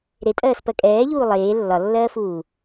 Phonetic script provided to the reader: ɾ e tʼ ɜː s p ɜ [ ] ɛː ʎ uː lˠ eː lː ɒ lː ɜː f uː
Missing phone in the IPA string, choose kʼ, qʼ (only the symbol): kʼ